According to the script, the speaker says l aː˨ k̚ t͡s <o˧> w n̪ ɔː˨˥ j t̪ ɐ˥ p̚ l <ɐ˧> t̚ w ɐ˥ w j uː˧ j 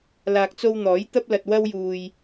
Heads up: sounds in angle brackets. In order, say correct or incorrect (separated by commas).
correct, correct